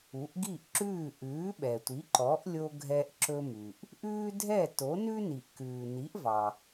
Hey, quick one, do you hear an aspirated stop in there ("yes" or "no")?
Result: no